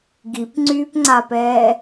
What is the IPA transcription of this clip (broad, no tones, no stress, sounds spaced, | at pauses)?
ɡ i p ŋ͡ǀ yː p ŋ͡ǀ a p ɛː